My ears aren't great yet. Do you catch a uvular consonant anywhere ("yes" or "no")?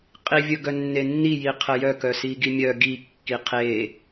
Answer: yes